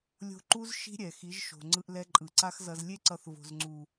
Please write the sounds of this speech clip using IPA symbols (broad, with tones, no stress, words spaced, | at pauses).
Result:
lʲo̤˧ ǃu˦z ʃi̤˦ɾʲɛ˨ xi˨˦ʒʃo̤˨ŋ͡ǀɯ˧ʔ lɛ˧ǃʼɯ˨ǀa˦xzʌ˧z lʲe˧ǀʌ˨θ vo̤˨zŋ͡ǀu˨